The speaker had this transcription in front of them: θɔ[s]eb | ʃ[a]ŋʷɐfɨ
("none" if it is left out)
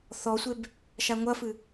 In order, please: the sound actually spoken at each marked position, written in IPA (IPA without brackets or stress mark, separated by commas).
sʷ, a